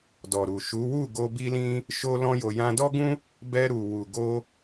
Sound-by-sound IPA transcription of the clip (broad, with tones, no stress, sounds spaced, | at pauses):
d ɔ˨ ɾ u˨ ʃ u˨˦ w u˦˨ ɡ o˧ b i˦ l ĩ˦ | ʃ o˦ l ɔ̃˦ j o˧ j ã˧ d ɔ˦ ɡ ũ˦ | b ɛ˧ ɾ u˨ w u˨ ɡ o˧